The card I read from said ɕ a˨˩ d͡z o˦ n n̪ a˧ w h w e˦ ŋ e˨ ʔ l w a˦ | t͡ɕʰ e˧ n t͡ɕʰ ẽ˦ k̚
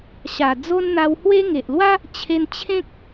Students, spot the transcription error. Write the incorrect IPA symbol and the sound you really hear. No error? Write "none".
none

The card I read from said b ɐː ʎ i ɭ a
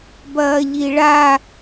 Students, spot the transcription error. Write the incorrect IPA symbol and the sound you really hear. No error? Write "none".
none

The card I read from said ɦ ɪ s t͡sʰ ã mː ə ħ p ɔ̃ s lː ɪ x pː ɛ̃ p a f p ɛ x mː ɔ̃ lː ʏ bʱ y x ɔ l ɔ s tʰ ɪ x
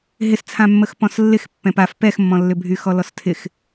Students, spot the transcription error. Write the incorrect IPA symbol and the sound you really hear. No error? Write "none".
ħ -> x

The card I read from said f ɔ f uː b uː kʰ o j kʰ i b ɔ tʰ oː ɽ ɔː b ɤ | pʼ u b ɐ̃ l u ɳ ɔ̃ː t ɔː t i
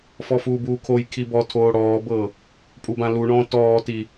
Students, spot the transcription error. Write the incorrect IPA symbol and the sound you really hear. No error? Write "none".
ɐ̃ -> ã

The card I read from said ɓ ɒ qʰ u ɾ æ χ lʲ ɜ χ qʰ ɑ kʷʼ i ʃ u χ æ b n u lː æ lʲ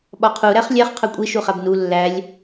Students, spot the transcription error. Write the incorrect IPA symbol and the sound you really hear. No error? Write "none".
ɜ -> æ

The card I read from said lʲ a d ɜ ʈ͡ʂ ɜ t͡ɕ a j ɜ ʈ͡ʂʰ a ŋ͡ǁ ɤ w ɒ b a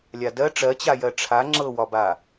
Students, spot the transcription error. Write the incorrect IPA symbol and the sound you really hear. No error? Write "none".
none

